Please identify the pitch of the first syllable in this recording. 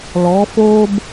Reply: rising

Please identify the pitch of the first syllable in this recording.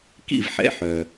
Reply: falling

